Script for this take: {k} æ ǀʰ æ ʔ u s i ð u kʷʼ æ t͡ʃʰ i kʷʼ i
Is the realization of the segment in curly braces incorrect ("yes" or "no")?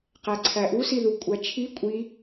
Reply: yes